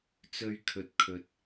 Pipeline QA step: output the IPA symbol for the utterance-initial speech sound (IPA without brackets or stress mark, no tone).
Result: t͡s